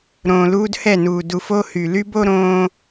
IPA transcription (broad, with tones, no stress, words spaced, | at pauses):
ɾõː˨luː˦dhɛ˦˨nuː˨ du˨f o˦hy˨ ly˦bo˦ɾõː˦